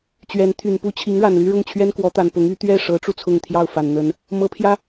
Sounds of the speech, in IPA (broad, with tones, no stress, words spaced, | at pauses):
t͡ɕɥɛ˧˥nt̪ʰy˨˩n pu˥t͡ɕʰi˧˥ŋ ɻa˨˩nly˥ ɻʊ˥˩ŋ t͡ɕʰɥɛ˥nkwɔ˧˥t̪a˨˩n pʊ˧˥ŋ y˧˥ t̪ɥɛ˥˩ʂɤ˧˥ʈ͡ʂu˧ t͡sʰʊ˥˧ŋt̪ʰjɑ˥˩ʊ̯fa˨˩n n̪ə˧˥n | mɤ˧˥pʰjä˥